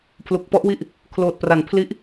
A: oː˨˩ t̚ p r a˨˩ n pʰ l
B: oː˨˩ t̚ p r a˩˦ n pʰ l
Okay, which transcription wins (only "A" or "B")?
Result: A